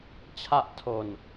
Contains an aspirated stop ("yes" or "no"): yes